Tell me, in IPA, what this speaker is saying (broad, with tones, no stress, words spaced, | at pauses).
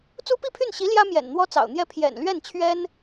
t͡su˥pi˥˧pʰy˥˩n ɕi˧˥ ljä˥ mjɛ̰˨˩nn̪wɔ˥t͡sɑ̰˨˩ʊ̯n̪jɛ˥˩ pʰjɛ̰˨˩nlɥɛ˥˩nt͡ɕʰɥɛ˥n